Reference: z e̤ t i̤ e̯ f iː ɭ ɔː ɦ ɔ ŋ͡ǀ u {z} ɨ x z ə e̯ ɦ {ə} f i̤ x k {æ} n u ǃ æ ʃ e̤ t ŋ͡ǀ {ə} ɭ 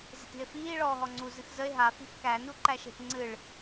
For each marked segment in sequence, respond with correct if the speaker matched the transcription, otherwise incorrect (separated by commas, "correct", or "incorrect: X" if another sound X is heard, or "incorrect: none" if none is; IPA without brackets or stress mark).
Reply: correct, incorrect: a, correct, incorrect: ɨ